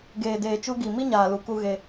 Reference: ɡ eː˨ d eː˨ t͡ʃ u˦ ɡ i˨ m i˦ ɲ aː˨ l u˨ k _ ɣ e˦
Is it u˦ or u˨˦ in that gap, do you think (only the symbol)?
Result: u˦